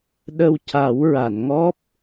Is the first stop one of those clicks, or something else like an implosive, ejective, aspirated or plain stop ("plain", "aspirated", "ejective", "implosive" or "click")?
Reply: implosive